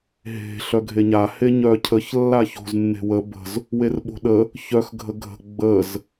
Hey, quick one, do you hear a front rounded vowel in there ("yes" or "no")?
yes